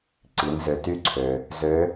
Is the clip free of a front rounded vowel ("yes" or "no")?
no